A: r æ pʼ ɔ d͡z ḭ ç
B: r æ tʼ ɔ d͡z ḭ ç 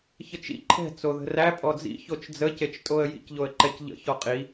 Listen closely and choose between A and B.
A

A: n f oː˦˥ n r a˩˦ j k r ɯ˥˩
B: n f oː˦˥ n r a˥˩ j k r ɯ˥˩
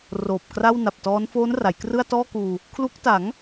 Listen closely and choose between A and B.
A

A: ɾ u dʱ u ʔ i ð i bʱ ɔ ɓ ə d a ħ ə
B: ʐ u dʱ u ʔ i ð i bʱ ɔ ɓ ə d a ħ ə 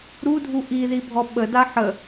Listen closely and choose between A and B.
A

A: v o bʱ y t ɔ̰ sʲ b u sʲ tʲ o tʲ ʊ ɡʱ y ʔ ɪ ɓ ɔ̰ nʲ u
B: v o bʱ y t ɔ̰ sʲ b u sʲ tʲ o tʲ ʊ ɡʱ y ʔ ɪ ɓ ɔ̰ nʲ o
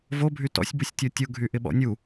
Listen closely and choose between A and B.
A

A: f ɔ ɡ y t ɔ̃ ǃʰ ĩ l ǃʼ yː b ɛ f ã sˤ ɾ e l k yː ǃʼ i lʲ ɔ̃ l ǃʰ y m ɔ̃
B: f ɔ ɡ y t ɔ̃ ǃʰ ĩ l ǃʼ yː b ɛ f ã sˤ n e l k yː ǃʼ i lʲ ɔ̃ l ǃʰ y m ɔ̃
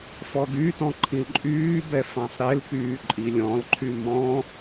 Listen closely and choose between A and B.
A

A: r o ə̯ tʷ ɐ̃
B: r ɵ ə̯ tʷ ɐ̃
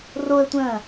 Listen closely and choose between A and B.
A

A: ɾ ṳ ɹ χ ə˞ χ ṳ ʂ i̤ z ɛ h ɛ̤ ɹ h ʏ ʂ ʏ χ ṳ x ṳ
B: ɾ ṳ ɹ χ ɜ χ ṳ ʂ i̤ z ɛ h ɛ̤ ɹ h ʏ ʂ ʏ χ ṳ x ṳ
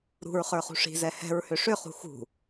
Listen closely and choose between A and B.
A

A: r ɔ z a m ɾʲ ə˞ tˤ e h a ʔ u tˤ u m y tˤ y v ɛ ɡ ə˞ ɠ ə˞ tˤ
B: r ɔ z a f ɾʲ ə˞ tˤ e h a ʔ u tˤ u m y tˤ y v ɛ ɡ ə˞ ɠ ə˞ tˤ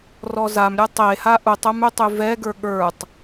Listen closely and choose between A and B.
A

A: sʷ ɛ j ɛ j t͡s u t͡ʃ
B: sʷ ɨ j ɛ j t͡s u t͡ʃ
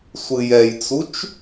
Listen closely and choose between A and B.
B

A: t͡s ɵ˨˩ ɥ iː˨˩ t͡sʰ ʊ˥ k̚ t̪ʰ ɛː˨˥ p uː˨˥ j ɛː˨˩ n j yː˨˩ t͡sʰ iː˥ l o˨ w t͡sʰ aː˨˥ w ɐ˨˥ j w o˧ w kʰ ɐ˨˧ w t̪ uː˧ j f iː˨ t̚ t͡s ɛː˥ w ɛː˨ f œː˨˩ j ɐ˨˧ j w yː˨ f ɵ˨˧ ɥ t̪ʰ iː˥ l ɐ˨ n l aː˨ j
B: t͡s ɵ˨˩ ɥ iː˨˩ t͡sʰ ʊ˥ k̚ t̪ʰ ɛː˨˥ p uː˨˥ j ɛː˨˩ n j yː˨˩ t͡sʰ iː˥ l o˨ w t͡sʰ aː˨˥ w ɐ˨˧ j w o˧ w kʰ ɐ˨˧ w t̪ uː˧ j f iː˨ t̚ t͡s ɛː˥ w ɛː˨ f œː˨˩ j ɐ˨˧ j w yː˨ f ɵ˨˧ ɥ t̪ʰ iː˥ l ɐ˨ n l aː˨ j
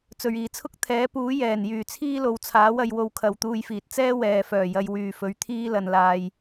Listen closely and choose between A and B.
B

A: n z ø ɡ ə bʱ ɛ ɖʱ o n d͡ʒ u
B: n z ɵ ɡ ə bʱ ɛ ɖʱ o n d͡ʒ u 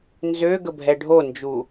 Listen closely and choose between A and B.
A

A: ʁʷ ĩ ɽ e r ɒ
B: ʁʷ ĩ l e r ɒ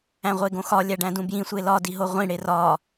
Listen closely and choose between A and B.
A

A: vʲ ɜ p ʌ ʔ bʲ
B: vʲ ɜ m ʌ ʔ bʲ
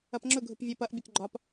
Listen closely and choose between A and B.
A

